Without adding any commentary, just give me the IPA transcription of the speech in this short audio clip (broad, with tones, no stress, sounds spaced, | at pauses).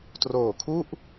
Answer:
t r oː˨˩ kʰ u˥˩ ʔ